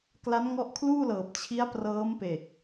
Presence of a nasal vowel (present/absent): absent